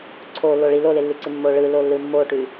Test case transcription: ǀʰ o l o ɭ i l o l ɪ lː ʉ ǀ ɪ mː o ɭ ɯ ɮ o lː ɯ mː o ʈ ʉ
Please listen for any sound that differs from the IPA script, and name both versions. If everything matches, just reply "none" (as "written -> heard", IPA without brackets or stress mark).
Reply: ɮ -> l